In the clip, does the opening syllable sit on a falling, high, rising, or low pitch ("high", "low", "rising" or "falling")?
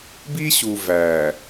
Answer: high